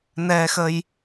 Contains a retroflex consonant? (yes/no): no